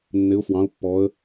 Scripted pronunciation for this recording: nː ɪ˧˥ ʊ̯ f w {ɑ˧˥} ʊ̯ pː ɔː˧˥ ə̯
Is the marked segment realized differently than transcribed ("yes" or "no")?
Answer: yes